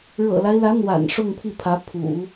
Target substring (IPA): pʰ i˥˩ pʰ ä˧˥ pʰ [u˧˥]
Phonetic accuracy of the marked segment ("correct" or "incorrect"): incorrect